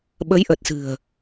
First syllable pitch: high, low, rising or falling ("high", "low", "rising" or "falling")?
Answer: rising